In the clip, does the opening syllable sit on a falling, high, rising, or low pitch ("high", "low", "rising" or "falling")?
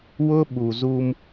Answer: high